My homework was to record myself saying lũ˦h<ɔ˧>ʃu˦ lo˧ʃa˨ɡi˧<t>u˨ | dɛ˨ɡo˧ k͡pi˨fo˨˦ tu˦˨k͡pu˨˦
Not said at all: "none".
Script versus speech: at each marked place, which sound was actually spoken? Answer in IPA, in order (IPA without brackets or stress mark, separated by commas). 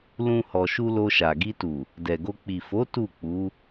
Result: ɔ˧, t